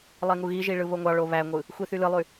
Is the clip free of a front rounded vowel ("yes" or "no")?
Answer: no